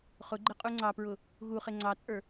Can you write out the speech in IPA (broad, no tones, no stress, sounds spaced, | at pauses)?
χ ʊ ɡ͡ǃ ɪ qʼ u ŋ͡ǀ ɑ p ɹ ʊ | ɣ u χ ɪ ŋ͡ǀ ɑ t͡sʼ ə˞